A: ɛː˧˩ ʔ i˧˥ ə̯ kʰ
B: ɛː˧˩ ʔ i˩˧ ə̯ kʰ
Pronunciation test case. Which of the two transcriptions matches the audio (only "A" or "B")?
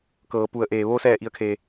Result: B